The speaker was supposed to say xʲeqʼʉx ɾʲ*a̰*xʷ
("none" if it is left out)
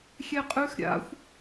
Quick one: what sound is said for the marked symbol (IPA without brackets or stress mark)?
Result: a̰